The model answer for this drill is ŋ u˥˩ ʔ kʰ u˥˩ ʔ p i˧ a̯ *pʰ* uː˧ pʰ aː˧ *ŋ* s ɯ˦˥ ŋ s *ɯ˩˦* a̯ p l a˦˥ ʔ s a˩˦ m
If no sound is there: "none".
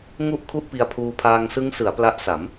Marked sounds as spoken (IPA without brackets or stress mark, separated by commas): pʰ, ŋ, ɯ˩˦